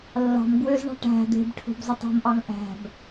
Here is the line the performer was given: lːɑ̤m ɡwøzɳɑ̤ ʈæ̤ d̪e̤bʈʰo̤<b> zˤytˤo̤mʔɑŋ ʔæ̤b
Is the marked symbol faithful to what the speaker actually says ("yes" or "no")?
yes